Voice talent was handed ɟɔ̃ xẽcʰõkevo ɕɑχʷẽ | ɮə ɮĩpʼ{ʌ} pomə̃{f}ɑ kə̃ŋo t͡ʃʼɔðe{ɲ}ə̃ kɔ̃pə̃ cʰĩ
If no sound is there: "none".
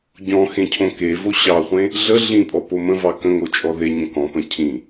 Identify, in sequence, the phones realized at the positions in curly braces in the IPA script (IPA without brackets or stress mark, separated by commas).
ɔ, v, ɲ